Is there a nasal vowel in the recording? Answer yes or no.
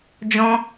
yes